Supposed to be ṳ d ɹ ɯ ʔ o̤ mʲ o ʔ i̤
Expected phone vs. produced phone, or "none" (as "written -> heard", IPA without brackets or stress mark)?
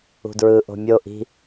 none